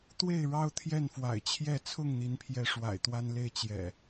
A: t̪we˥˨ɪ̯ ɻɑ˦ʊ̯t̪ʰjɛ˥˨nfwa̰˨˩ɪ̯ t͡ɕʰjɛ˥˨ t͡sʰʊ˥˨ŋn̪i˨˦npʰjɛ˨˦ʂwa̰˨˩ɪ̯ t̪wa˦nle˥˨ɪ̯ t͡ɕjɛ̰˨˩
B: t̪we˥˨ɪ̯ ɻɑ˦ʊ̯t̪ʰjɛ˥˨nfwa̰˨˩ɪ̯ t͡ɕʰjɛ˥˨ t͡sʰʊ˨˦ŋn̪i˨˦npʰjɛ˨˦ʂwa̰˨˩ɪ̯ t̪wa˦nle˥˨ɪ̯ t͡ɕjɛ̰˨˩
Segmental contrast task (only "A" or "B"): A